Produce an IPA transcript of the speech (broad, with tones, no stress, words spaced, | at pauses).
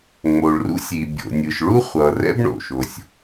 ŋ͡mo˩ɭrṵ˥sʲi˩ bʲo̰˩ nʲɯ˩ʃɭu˥ χʷʌ˩ rɛ̰˥bɳo̰˩ʃo˩sʲ